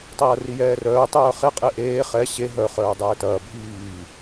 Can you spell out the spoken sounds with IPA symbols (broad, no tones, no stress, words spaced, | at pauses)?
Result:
tˤɐːrijɛːrœː tˤœːχe qʼeʔeː χɛ ɕe ɦœ χœːdˤɛːtɐː bʱiː